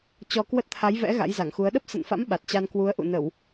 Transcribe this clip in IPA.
t͡ɕ ɔ˧ k w ə˦˥ t̚ t̪ʰ a˨˦ j v ɛ̰˧˥ ɣ a̰˧˥ j z a˧˩ ŋ x u˨˦ ə̯ ɗ ə˦˥ p̚ s ə̰˧˨ n f a̰˧˥ m ɓ a˨˩ t̚ t͡ɕ a˧ n k w u˨˦ ə̯ ʔ ṵ˧˨ n ə˧˩˨ w

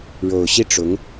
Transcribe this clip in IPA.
ɻ o˨˩ ʊ̯ ɕ i˥ ʈ͡ʂ ʊ˧˥ ŋ

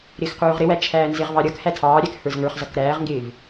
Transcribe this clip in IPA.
ɾ ɪː x q uː ʁ ɾ ɪ w æ t͡ʃʰ æː n z ɪ ʁ v ɑ ɾʲ ʌ k h æ tʰ ɑː ɾʲ æ k h ə˞ z ŋ ə˞ χ z ʌ k ɾ æː ʁ ŋ ɡ ɪː v

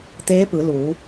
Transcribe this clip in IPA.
t̪ eː˧˥ p ɯː˩˧ l uː˩˧

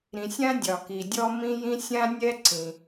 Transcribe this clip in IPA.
ɾ ĩ˩ sʲ ã˥ dʲ ɒ˩ k i˩ dʲ ɔ˥ m ĩ˥ j ĩ˥ sʲ ã˥ nʲ ɛ˥ ǀ ĩ˩

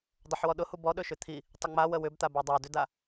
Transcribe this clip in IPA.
dˤ ə ħ w ɔ ɗ ʊ h u b ɔ ɗ ɵ ʃ ʏ t̪ʰ i | tˤ ə ŋ͡m a w ə w ʏ b t̪ a b a dˤ a d ʏ d a

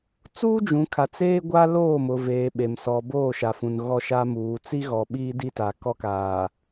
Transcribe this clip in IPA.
t͡s uː˦ d͡ʒ ũ˨ kʰ a˨ t͡s eː˦ ɡʷ a˦ l oː˦˨ m ʊ˨ v eː˨ ɓ e˨ m s ɔ˨ b oː˦˨ ʃ a˨ f ũ˨ n ɣ ɔ˦ ʃ a˦ m uː˨˦ t͡s i˦ ɣ ɔ˨ ɓ iː˦ d i˦ t a˨ k ɔ˦ k aː˨

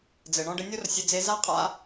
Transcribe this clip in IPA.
d͡z ɘ˨ ɳ ɔ̃˧ ɖ ɘ˧ nʲ o˦ r sʲ ɘ˧ d͡z e˧ z a˦ qʼ a̰˦

